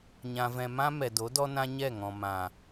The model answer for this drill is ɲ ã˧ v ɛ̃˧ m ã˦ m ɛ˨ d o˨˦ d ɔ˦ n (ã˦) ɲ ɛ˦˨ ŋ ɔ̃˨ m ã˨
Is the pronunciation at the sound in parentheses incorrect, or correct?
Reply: correct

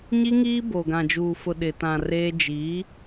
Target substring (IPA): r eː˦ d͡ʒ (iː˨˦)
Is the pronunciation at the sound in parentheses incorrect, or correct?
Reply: correct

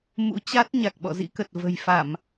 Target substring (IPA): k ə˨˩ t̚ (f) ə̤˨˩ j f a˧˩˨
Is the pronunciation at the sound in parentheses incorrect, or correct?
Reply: incorrect: v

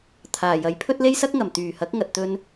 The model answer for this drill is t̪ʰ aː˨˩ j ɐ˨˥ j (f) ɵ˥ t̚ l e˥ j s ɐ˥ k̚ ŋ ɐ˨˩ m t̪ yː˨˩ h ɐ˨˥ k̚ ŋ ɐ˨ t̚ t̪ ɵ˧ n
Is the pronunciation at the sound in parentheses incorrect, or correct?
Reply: incorrect: pʰ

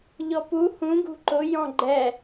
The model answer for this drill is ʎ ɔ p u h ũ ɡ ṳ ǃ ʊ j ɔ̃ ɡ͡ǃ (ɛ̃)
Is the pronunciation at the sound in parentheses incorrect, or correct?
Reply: incorrect: ɛ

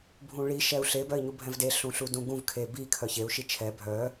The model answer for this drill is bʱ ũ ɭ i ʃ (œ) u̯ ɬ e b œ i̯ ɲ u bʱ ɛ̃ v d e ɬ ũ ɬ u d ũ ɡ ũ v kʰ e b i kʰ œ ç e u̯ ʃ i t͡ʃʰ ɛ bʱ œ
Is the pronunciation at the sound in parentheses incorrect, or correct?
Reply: incorrect: ɛ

